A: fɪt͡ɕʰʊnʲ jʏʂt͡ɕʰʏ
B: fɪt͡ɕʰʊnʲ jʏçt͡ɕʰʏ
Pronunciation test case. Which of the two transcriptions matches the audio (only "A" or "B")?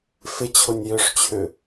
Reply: A